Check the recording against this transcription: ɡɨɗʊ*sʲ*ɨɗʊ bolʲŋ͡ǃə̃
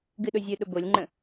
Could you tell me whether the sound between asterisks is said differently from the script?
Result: yes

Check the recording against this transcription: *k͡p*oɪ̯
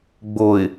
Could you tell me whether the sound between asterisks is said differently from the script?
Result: yes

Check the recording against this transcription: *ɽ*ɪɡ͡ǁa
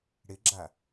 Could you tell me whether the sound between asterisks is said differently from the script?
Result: no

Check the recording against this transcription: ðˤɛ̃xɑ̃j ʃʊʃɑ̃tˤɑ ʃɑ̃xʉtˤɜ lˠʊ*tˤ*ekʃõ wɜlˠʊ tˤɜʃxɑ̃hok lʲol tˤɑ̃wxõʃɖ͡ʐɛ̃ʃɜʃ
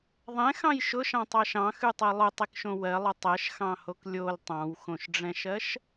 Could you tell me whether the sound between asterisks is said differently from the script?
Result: no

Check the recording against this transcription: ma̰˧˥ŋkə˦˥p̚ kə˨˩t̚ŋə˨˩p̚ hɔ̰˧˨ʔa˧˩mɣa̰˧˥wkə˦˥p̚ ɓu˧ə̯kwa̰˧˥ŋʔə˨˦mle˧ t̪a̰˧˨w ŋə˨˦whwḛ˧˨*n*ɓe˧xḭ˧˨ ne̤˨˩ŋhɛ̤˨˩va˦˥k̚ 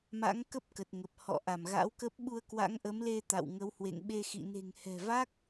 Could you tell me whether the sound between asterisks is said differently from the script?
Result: yes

